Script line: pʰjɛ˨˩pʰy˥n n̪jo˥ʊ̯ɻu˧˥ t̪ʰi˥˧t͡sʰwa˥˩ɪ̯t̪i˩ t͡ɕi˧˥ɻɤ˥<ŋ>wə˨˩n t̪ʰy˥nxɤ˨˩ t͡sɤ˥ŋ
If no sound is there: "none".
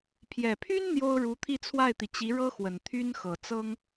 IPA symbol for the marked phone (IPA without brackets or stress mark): x